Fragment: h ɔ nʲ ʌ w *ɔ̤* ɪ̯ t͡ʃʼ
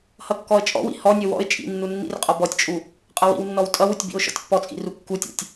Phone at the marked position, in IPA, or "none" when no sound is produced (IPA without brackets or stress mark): ɔ̰